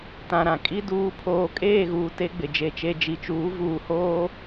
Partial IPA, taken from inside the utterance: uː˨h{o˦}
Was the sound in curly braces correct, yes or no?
no